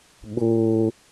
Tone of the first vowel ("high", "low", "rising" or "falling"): high